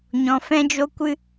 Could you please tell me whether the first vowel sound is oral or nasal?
nasal